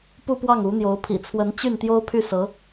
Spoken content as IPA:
pu˥˧pwɑ˥˩ŋu˧˥n̪jo˧˥ʊ̯ pʰḭ˨˩t͡sʰwə˧˥n t͡ɕy˥˩nt̪jo˥ʊ̯pʰy˥˩sɤ˧˥

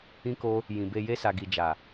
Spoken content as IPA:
ĩ˦ko˦ | jĩ˨be˧ je˧sa˨ɡi˨d͡ʒa˨

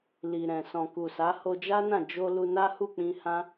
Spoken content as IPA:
li˨ ɾɛ̃˨sɔ̃˨ku˨sa˨˦ ho˧d͡ʒa˦nã˦˨ d͡ʒo˧ lu˧na˦hu˦˨ k͡pĩ˧hã˦

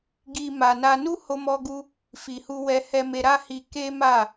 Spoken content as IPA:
ɡi˨ ma˨na˧ nu˦ho˧mɔ˧ɡu˧ | fi˨hu˧wɛ˧ hɛ˧me˧ ɾa˦hi˧ ke˦ ma˦˨

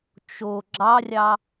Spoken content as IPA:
t͡ʃo ɡ͡ǁɑrʲɑ

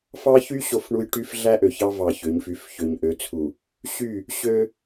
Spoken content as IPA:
fɑ˦çy˦ ɕo˦fɳu˦j ʈy˦f ɮæ˦ʔø˨çɑ˦ vɑ˨ çø˨˦ɲfy˨˦f çø˨ɲʔø˨˦t͡sʰu˨ | ɕy˦˨ | ɕø˦

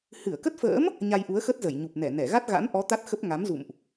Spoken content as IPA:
hɨ˧˩ə̯kə˦˥t̚fə̰ː˧˥m | ɲa˧jʔu˨˦ə̯xə˦˥t̚zə˧˩j ɲu˨˩p̚nɛ˧˩nɛ˧˩ ɣa˦˥t̚ɣa̰˧˥nʔɔ˨˦ t̪a˦˥t̚xə˦˥p̚ ŋa˨˦mzṵ˧˨mʔ

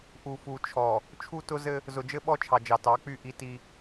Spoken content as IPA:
ʔu˨fu˨t͡ʃʰɔ˨ | t͡ʃʰu˦tʊ˦zɘ˦ | zʊ˨d͡ʒɘ˦ ɓɔ˦t͡ʃʰɑ˨ d͡ʒɑ˨tɑ˨˦k͡py˦˨ ʔi˦ti˦

